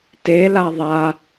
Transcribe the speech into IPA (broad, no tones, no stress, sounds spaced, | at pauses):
t e l a ðˤ a